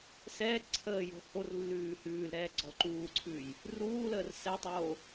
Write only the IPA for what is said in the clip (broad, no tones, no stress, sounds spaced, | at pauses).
s ɛː ǀʰ əː j o̤ h o r lː ʉː h ʉː l ɾ ɛː ɡ͡ǀ ɔ l ǃ uː ǀʰ ʉː j | r uː l əː r s ɛ tˤ oː